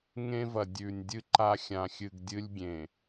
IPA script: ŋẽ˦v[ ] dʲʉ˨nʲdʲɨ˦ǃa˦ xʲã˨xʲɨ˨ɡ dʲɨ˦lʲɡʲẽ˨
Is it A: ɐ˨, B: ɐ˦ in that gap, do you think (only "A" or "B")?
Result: A